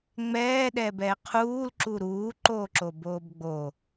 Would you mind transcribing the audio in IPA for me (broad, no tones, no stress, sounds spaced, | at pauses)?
ŋ͡m ɛː ɗ ɛː b ɛː qʰ uː l ǁ u ɾ uː ǃ oː ǁ o b oː b ɡ͡b o